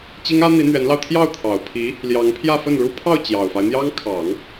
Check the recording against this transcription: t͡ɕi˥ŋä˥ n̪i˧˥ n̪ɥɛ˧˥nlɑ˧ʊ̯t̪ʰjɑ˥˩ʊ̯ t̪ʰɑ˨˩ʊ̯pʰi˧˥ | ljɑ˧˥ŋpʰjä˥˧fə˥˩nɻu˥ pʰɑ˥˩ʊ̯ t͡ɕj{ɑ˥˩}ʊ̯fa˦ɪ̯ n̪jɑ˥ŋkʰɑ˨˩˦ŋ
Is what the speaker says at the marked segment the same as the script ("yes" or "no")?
no